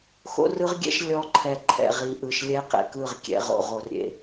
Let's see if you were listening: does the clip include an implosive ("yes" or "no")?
no